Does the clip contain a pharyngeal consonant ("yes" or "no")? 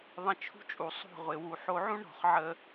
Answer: yes